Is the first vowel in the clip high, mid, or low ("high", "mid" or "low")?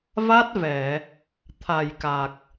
low